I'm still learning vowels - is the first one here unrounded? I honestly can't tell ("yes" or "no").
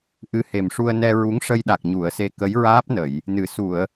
yes